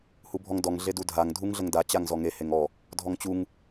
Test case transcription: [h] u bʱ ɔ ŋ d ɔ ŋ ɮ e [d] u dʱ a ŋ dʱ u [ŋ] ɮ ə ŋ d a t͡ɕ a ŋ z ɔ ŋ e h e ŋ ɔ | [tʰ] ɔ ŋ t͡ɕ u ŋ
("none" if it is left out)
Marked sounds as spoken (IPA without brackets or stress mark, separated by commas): h, d, ŋ, dʱ